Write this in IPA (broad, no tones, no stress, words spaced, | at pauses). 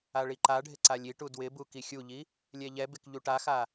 aɭiǃaɖʱɪ ǀalʲiʈu dwɪbu kixʲuʎi | lʲɛʎɛbɪk ʎuʈaxa